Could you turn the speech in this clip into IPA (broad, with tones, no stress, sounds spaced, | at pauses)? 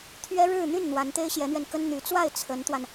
t̪ʰ ɥ ɛ˥ ɻ ɻ̩˥˧ n̪ y˥˩ n n̪ w a˧˥ n t̪ e˥ ɪ̯ ɕ j ɛ˧˥ n̪ ɥ ɛ˧ n k ə˥ n n̪ y˧˥ t͡s w a˥˩ ɪ̯ t͡sʰ ə˧˥ n t̪ w a˧ n